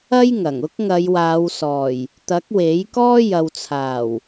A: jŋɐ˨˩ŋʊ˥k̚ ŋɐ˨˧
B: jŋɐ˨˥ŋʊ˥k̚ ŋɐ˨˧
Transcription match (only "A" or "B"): A